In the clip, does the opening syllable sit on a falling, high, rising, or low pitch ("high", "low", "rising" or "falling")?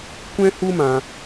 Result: high